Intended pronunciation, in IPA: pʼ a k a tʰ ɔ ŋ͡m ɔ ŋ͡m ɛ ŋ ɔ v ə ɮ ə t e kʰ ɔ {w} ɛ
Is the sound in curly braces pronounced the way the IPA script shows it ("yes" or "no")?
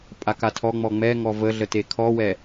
yes